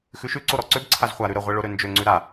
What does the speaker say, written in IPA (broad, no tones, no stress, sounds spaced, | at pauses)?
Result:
x ʉ ʃ ʉ ǀ o ɾ ɔ ǀ ø b ǀʰ a z χʷ a ɾ ʉ ɾ ə ʁʷ ɛ ɭ o ɾ ø n d͡ʒ ø ŋ͡ǀ ʉ ɾ a